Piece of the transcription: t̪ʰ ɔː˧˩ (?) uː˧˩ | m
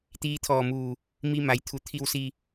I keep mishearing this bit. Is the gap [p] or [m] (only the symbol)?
m